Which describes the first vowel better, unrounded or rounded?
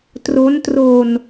rounded